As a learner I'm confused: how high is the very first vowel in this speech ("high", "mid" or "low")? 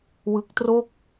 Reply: high